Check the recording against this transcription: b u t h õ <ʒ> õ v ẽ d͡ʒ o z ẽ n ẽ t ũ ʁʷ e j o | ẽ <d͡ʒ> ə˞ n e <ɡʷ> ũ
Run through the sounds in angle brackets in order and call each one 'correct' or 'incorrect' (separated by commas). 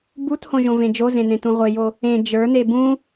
correct, correct, incorrect